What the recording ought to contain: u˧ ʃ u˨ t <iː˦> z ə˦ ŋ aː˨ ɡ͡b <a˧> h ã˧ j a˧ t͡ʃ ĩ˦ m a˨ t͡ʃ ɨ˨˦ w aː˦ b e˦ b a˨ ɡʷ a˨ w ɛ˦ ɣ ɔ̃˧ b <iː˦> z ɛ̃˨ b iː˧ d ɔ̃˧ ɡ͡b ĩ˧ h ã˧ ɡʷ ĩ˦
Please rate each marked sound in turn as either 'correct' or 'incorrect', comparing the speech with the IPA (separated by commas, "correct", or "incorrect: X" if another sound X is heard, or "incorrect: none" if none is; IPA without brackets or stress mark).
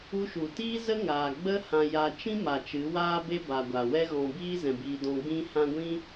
correct, incorrect: ə˧, correct